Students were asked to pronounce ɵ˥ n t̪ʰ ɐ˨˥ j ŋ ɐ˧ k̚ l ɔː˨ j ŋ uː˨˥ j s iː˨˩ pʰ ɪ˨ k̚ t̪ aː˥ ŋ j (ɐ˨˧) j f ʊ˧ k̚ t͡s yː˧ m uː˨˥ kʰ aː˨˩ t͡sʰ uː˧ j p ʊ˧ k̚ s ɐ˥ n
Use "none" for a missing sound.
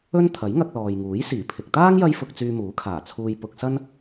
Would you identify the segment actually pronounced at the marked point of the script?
ɐ˥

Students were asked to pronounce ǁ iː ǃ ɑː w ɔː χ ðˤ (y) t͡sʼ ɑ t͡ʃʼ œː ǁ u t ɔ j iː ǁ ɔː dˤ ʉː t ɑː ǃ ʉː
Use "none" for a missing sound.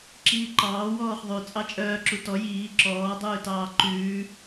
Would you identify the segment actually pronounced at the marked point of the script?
y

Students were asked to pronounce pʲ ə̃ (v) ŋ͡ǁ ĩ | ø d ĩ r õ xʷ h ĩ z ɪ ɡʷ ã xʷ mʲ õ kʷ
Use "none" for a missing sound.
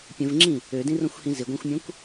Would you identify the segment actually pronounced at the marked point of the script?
v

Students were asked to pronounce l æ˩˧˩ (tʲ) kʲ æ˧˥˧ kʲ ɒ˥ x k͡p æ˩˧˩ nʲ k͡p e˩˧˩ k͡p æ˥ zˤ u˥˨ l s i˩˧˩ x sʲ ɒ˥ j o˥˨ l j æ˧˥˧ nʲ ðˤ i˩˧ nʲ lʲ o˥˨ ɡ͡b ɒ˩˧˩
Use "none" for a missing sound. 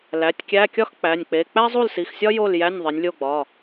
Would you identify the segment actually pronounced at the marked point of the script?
tʲ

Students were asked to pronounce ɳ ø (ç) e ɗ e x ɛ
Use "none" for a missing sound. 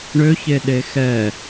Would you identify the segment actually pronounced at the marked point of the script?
ç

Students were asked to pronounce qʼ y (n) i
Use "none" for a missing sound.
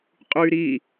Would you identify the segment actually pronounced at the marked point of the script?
ɾ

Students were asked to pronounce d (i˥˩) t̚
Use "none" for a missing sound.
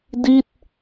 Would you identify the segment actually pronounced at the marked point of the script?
i˥˩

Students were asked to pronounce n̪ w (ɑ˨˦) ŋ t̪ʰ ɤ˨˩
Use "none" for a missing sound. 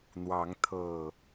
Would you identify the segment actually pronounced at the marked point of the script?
ɑ˨˦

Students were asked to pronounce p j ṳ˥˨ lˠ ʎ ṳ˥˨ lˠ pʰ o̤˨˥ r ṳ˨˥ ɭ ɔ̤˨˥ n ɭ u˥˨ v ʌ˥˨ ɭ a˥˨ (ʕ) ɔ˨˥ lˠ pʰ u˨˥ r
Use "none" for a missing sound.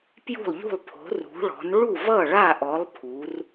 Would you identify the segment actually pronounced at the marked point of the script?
ʔ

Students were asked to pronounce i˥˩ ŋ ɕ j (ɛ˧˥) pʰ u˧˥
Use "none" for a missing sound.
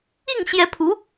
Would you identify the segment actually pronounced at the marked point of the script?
ɛ˧˥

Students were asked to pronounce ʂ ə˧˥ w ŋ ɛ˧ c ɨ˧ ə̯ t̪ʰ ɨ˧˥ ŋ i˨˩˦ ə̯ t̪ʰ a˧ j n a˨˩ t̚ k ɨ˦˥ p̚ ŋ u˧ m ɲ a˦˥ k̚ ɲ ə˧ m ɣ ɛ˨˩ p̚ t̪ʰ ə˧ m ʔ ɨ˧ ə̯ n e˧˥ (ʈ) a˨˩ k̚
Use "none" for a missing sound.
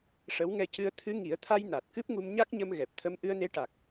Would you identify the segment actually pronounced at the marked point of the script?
ʈ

